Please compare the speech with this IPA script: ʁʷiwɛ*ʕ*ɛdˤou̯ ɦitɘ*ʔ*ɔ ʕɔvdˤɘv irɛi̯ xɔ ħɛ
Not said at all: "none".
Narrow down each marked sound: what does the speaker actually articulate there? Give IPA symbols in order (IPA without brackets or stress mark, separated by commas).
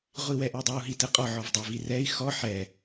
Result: ʔ, qʼ